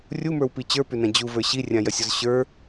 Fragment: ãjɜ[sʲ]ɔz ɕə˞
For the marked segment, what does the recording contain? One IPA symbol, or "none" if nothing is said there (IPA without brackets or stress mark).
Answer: sʲ